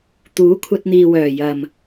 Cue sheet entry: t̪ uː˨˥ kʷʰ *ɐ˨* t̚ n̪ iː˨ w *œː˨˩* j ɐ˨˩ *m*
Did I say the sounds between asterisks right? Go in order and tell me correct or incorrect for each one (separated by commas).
incorrect, correct, correct